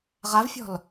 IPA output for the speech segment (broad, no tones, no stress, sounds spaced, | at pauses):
ʁ a v fʲ ɔ̤ l